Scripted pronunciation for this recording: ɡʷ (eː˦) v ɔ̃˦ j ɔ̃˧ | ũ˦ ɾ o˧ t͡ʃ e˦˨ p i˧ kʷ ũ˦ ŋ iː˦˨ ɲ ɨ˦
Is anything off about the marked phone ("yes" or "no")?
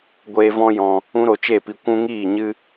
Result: no